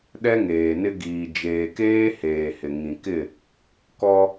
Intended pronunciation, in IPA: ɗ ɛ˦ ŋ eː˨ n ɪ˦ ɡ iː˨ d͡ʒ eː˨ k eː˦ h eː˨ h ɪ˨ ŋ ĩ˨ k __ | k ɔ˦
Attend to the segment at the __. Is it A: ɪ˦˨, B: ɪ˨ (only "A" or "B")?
A